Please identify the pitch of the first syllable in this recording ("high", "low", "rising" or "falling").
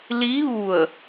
rising